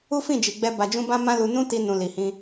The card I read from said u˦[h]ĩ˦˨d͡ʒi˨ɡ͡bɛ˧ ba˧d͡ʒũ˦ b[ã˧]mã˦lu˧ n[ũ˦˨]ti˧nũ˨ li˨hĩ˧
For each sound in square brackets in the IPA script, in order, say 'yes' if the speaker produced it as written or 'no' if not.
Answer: no, no, no

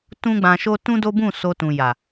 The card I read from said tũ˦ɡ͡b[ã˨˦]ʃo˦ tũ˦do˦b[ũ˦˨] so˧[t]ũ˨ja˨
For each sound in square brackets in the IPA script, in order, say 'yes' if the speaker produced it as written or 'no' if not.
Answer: no, yes, yes

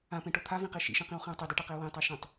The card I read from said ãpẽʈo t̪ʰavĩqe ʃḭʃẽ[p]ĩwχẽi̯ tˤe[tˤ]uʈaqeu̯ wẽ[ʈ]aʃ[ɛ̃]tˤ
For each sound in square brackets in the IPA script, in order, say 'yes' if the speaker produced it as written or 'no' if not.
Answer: no, no, no, no

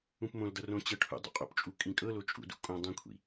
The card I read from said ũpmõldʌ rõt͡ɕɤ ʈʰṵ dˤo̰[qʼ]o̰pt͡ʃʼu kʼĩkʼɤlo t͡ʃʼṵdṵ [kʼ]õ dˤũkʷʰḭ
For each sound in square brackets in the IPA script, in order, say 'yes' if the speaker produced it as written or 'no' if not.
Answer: yes, yes

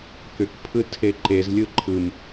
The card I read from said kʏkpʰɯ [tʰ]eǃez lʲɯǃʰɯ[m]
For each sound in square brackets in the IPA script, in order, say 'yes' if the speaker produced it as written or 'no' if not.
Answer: yes, yes

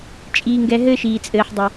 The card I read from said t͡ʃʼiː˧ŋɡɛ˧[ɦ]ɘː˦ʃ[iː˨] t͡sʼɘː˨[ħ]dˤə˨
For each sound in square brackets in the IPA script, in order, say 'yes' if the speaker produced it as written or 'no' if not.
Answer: yes, yes, yes

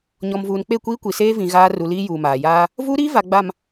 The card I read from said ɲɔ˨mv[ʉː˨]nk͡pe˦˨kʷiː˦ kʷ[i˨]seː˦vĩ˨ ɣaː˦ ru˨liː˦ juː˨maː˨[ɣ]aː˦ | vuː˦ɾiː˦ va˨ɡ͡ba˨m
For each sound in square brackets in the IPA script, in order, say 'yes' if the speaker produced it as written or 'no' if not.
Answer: no, yes, no

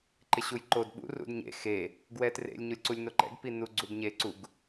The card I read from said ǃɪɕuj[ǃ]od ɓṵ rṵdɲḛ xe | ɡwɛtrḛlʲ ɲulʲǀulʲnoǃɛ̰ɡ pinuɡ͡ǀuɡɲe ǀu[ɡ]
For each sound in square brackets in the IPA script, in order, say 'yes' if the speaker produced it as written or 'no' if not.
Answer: yes, yes

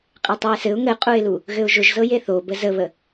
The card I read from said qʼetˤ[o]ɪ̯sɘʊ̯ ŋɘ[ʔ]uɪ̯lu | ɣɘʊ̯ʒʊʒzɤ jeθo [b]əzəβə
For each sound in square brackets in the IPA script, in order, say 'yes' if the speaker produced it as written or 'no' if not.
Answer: yes, no, yes

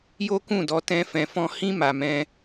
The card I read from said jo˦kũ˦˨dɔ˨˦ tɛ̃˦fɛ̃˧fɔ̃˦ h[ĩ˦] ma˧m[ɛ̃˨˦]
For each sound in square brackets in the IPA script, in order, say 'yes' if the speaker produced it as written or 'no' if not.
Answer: yes, no

